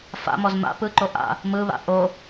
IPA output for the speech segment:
f a̰ m ɔ z m a̰ p ɯ ǃ o ʔ a̰ | m ɯ β a̰ ʔ o

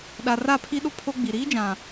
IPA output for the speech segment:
ɗ a˨ r a˦˨ pʰ i˦ ɗ ʊ˦ pʰ o˦ ɡ͡b i˨ ɾ iː˦ d͡ʒ ã˨

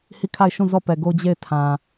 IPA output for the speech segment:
h i˦˨ kʰ a˦˨ ɪ̯ ʃ ũ˦˨ z ɔ˦˨ p ɛ˨ ɡ o˦ d͡ʑ e˦˨ ɪ̯ tʰ ã˨

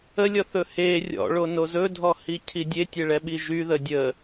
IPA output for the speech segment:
ə lʲ ɔ θ ɵ h e rʲ ɔ̰ ɭ o n o z ɵ dʱ ɔ h i cʰ i dʲ e tʲ e ɭ ɛ ɓ i ʒ y ð ə dʲ ə

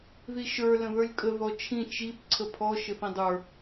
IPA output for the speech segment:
ð i ʃ ə˞ l ə̃ ð ə˞ lʲ kʼ ə ð ɔ t͡ʃʰ ĩ t͡ʃ i p ǀʰ ə pʰ ɔ ʃ ɘ θ ĩ dˤ ə˞

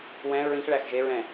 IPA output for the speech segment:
w ɛ̃ ɹ ĩ x ɭ æ x ʒ e ɹ ɛ̃

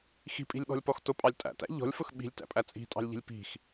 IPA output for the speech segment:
x i̤ pʼ i̤ lʲ ɓ ɔ̤ lʲ p ɔ x t ʊ pʼ ɑ lʲ tʼ æ̰ t æ̰ ʎ ɔ̤ lʲ f ʊ x ɓ i̤ lʲ t æ̰ pʼ æ t͡sʼ i̤ tʼ ɑ̤ lʲ ʎ i̤ lʲ p i̤ x

